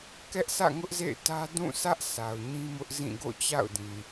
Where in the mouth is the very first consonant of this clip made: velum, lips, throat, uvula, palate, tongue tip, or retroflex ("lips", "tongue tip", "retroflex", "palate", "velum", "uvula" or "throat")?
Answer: velum